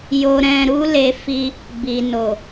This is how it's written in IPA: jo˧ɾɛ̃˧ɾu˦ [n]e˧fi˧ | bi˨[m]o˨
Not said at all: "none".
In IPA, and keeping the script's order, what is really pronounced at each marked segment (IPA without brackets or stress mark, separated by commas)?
l, n